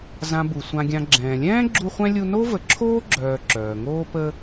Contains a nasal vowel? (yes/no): yes